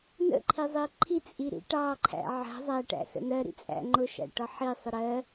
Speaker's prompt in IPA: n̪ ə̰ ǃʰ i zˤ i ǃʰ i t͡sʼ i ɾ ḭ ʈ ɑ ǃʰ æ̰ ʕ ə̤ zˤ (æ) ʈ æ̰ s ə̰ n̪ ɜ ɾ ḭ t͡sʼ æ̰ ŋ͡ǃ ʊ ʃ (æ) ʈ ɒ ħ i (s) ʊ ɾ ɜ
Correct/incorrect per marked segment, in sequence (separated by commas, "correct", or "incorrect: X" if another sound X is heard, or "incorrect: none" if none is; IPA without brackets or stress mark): correct, incorrect: æ̰, incorrect: sˤ